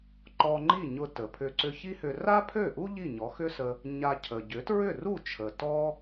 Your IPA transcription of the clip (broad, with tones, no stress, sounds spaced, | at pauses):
ǃ ɔ˧ ŋ͡ǃ i˥˩ ɲ ʊ˧ t ə˩ pʰ ʏ˧ ǀ ʏ˧ ç i˥ h ʏ˧ r a˥ pʰ ø˥˩ ʔ u˥ ʎ i˥˩ ɲ ɔ˩˥ x ʏ˥ s ə˧ | ɲ a˧ cʰ ə˩ ɟ ʏ˩˥ t ɹ ʏ˥˩ r u˥˩ t͡ʃʰ ə˩ t ɔ˥